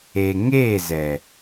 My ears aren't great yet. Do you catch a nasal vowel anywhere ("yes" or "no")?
no